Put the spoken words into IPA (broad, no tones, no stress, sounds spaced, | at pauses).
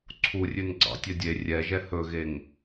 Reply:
ǀʰ u rʲ ʉ n ɡ͡ǀ ɑ̰ tʲ œ dʲ e rʲ ɛ ʒ ɛ h ɵ ɣ e ŋ